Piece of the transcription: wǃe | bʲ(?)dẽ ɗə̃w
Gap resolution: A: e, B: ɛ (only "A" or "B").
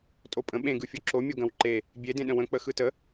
A